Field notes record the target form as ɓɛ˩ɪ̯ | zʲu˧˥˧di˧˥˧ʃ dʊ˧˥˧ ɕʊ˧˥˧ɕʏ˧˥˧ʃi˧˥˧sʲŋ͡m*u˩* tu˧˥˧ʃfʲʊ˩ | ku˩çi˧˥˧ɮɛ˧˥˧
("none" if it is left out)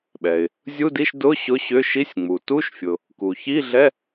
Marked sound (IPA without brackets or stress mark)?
u˩